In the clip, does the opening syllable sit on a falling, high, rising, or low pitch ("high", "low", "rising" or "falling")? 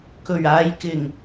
low